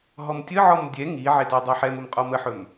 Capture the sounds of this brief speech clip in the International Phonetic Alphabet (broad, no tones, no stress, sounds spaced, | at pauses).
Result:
ɦ ɔ m tʲ ə ʕ ɔ m dʲ ɛ ŋ i ʕ e t e dˤ e ħ ɛ m ʊ m qʼ ɔ m ə ħ ɵ m